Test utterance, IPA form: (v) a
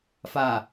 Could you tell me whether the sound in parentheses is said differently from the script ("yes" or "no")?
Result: yes